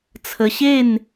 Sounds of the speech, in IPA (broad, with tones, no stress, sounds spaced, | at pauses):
t͡sʰ ə˧ ɕ e˥˧ n